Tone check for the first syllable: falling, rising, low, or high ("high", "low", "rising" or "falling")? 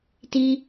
high